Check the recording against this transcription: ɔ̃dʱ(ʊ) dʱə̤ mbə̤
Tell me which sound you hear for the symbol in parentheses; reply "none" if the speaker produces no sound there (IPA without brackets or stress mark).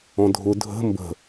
ʊ